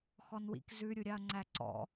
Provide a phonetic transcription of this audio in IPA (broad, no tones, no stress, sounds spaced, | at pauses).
x ɔ n w ḭ k z ʉ ɾʲ u ɾʲ ɑ ɐ̯ ŋ͡ǀ æ ǀ ɔ̰